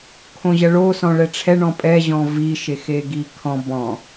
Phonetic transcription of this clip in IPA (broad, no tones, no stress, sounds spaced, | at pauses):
kʰ õ ʑ ɐ ɭ o s ɔ̃ ɭ ɛ ʈ͡ʂʰ ɛ ɳ ɔ̃ pʼ ɛ ʑ ɔ̃ v i ʃ e x e ɡ i kʰ ɔ̃ b ɔ̃